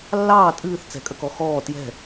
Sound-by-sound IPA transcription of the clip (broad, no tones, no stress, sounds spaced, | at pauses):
lː ɑː tʼ ɨː θ t͡s ɛ̤ kʼ ə k ɔ x ɔː t j ɛ̤